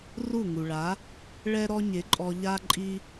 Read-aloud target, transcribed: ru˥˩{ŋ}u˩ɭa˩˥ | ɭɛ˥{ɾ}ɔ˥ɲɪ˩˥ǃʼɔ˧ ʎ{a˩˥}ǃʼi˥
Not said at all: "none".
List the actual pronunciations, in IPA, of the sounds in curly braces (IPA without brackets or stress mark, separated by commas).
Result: ŋ, ɾ, a˥